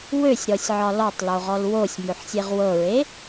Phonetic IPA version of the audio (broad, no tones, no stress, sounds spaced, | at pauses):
w ø sʲ ɾ ɔ sʲ ʕ ɒ l ɔ tˤ l o ʁ ɔ l w o sʲ m ø ħ sʲ e ʁ w ɤ ɹ e